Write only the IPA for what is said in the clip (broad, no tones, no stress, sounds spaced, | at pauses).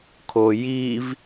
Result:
kʰ o j i v